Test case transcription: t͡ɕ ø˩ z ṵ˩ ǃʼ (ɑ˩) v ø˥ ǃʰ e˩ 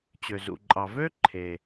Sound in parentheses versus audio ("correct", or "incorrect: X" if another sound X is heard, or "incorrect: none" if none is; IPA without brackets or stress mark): correct